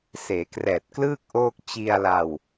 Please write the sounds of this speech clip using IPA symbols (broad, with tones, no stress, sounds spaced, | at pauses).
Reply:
s eː˩˦ k r ɛː˨˩ t̚ k l ɯː˥˩ k̚ ʔ oː˥˩ k̚ t͡ɕ i˧ a̯ l a˧ w